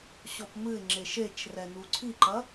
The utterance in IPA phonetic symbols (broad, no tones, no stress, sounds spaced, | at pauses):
ɕ ɔ p m ɨ ɪ̯ ŋ͡ǁ e ʃ e t͡ʃ r ɛ n u ǀʰ i ǃ ɐ